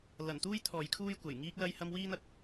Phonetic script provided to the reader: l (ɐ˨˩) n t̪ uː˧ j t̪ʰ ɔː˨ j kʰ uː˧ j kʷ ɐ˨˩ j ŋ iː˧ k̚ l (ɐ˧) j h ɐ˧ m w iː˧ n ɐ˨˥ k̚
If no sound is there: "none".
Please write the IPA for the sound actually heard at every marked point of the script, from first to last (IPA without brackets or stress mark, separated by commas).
ɐ˨˩, ɐ˧